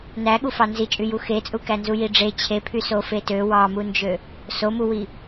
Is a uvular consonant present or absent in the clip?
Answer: absent